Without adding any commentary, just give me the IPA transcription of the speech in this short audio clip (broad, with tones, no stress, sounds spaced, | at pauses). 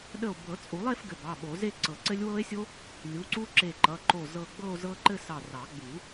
ɗ ə˧˩ o̯ b ɤ˨˩˦ t͡sʼ u˨˩˦ lˠ e˥˧ f ɡ ɘ˩˧˩ b ɑ˩˧˩ ɓ o˨˩˦ z e˥˧ ǀ ɤ˨˩˦ ǀ ɘ˦˥ lʲ w ɤ˦˥ e̯ sʲ o˦˥ | lʲ u˩˧˩ ǀ u˦˥ ǁ e˧˩ ǃ ʌ˩˧˩ ǃ o˧˩ z ɤ˧˩ ɡ͡b ɤ˥˧ o̯ z ɤ˦˥ ǃ ɘ˥˧ s ɑ˧˩ r ɑ˨˩˦ ɡ͡b u˨˩˦